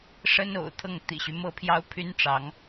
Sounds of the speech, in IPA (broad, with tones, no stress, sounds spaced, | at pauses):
ʂ ə˥ n o̰˨˩ ʊ̯ t̪ʰ ɤ˥˩ ŋ t̪ ḭ˨˩ ɕ y˦ m ɤ˥ pʰ j ɑ˥ ʊ̯ pʰ y˥ n ʈ͡ʂ ɑ˧˥ ŋ